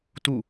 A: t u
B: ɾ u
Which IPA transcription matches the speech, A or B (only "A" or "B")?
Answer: A